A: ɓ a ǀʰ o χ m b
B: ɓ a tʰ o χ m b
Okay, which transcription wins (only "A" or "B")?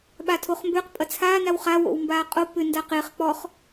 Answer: B